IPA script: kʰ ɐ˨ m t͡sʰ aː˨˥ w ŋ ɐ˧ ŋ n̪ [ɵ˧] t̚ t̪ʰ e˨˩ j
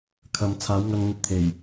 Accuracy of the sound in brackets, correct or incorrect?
correct